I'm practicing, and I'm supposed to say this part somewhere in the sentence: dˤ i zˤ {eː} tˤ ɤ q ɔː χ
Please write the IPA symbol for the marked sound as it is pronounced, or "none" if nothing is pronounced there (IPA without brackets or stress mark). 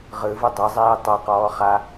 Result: iː